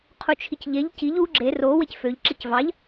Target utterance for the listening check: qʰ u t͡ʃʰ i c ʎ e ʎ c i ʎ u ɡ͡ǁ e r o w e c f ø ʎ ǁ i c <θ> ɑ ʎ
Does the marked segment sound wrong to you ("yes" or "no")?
yes